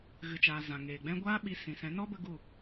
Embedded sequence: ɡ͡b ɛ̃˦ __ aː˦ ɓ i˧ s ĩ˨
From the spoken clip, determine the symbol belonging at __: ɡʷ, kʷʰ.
ɡʷ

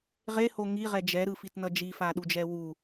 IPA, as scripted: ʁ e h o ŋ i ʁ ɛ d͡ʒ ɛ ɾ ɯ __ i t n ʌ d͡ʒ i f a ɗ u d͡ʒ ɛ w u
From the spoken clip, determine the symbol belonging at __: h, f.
f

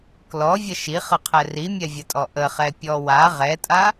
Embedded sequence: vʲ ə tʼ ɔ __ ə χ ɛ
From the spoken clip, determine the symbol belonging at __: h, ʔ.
ʔ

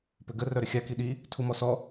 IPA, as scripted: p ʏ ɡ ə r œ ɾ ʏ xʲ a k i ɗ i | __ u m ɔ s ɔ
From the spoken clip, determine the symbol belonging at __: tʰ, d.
tʰ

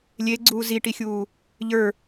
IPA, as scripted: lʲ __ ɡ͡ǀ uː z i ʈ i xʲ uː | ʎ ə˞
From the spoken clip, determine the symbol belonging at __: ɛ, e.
e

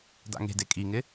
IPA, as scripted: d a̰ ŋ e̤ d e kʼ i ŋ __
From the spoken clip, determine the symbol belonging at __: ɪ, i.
ɪ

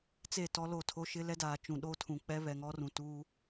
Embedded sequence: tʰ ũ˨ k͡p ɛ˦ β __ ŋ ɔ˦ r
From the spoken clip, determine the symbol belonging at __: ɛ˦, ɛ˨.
ɛ˨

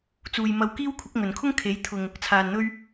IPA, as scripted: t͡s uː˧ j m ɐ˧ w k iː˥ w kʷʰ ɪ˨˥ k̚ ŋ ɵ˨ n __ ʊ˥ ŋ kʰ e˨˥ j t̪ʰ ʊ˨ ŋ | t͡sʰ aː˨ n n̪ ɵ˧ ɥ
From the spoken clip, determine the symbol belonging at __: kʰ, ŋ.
kʰ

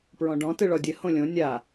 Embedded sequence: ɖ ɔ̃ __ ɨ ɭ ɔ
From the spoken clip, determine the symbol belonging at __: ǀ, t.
t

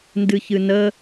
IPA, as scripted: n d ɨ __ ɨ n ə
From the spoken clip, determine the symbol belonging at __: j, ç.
ç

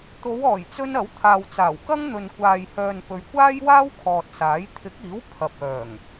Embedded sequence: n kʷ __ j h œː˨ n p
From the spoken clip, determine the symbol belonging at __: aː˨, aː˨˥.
aː˨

